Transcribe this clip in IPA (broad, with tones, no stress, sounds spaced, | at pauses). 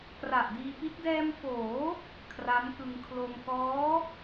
k r a˨˩ ʔ d iː˧ p i˦˥ t̚ d ɛː˧ m f oː˩˦ | kʰ r a˦˥ m k ɯ˧ ŋ kʰ l o˧ m k ɔː˦˥